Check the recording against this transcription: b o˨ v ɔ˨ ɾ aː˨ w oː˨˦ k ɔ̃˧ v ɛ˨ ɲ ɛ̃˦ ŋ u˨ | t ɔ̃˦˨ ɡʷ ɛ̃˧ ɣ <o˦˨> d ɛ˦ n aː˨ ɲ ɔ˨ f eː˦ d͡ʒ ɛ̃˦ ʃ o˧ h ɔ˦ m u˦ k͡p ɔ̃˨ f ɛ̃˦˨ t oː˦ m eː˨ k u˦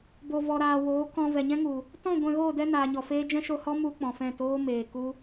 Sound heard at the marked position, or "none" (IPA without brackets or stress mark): oː˦˨